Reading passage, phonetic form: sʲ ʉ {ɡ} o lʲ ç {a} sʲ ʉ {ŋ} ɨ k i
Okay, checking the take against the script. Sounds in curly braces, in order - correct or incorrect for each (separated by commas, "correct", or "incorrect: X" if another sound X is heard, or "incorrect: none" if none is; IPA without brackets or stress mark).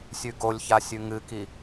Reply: correct, correct, correct